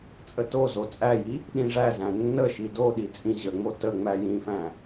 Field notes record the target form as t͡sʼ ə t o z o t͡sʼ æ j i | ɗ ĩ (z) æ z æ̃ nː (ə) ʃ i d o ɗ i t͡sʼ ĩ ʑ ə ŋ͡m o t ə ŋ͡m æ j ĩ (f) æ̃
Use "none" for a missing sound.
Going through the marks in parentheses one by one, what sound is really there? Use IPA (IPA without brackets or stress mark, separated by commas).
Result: ʐ, ə, f